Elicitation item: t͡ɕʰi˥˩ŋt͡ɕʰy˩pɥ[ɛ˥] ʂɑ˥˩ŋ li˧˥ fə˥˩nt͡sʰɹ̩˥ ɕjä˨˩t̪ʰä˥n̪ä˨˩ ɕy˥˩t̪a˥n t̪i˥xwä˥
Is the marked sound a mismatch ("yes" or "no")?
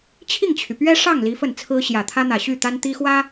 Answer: no